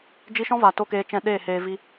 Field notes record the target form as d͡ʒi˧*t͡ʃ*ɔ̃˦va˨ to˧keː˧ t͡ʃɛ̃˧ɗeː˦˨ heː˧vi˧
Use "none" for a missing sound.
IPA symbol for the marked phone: ʃ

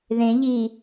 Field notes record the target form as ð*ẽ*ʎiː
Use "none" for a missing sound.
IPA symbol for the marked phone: ẽ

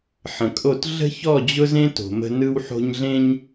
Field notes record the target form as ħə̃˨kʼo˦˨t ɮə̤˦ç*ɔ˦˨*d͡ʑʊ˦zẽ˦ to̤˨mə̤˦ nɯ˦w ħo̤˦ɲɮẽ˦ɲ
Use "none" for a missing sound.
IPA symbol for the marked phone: ɔ˦˨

